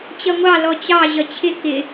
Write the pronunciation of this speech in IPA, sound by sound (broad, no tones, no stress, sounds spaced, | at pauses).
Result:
t͡ɕ ʌ ŋʷ ɑ l ɔ t͡ɕ ɑ ʑ ʌ t͡ɕʰ ɪ k ɪ